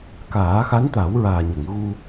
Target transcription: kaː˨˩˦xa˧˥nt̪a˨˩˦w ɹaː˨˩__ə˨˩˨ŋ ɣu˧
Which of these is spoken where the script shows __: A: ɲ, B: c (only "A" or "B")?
A